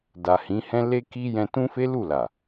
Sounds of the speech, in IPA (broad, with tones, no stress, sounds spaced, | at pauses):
d a˨ h ĩ˨˦ h ɛ̃˦ l e˧ k i˧ j ɛ̃˧ t ũ˦ f e˦ l u˦˨ l a˨